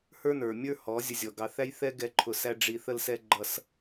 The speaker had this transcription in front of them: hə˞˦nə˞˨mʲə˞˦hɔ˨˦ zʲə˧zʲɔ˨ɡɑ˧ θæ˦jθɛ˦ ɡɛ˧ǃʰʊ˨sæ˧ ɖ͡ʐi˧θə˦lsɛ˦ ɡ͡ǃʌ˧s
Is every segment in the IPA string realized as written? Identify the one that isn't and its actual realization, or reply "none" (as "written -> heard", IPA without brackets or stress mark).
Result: none